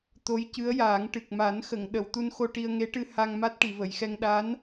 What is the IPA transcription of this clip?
t̪o˧˥jcɨ˧˥ə̯jaː˨˩˦ŋ ʈɨ˨˩k̚ ma˨˩˦nxə˨˩˨ŋ ɗə˨˩˨wt̪u˧nxo˧ ʈi˧ə̯ŋe˧˥ʈɨ˧ ha˧ŋma˦˥t̚ ʈi˨˩˨və˨˩˨jxɛ˧ŋ ɗa˧˥n

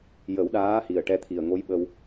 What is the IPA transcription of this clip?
jə˨˩˦wɗaː˧˥hi˨˩ə̯ ʈɛ˧t̪ʰi˨˩ə̯ŋo˧˥j ɓə˧w

